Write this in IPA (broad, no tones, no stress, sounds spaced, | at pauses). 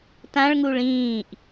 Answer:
t ã ɭ ŋ u ɭ ĩː ʔ